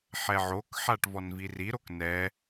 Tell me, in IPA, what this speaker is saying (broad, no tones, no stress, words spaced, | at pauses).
ħɛʕokħaʈ vɔnviriɾok nɛ